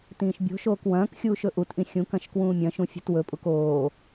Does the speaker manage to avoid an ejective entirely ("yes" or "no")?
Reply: no